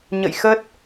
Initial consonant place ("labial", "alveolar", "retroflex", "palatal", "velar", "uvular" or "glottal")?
palatal